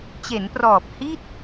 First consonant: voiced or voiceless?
voiceless